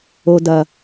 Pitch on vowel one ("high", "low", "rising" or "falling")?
low